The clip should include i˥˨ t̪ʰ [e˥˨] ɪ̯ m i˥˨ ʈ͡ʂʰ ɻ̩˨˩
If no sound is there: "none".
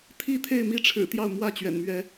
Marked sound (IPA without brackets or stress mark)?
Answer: e˥˨